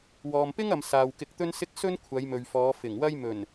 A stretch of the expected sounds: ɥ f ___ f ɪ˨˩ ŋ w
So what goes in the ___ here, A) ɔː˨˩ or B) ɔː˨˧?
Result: B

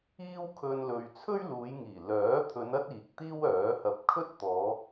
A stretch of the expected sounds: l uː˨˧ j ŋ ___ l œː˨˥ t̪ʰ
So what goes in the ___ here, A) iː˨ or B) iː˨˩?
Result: B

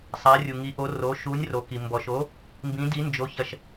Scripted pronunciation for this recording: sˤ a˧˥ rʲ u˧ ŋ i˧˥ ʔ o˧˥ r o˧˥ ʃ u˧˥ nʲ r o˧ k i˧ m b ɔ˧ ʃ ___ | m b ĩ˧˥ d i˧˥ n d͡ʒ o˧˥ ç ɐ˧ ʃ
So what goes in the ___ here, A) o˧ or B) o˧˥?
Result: B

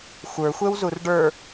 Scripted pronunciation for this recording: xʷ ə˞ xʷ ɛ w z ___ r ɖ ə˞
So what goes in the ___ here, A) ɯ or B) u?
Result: B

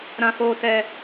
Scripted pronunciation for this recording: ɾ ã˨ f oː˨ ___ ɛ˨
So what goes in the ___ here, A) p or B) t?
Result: B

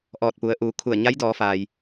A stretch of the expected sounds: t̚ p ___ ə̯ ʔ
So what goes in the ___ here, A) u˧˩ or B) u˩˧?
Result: B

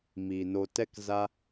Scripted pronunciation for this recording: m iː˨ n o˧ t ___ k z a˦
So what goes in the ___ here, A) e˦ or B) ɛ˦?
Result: B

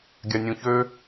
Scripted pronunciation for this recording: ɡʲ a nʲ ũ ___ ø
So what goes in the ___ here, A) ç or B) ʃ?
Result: A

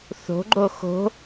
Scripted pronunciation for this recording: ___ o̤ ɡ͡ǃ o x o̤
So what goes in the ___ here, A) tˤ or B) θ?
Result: B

